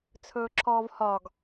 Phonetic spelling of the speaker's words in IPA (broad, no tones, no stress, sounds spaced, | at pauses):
t͡sʰ ɵː ǁʰ ɔː v h ɒ ɡ